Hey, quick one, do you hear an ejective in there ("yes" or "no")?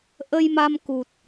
no